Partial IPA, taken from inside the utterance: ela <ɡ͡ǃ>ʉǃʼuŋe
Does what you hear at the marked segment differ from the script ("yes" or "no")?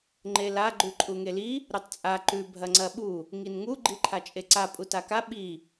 no